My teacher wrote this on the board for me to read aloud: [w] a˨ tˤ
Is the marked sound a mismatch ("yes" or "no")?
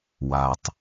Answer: no